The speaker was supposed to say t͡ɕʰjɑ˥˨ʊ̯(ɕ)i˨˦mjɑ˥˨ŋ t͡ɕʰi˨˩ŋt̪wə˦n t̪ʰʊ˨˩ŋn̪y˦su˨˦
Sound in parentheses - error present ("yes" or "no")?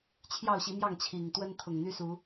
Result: no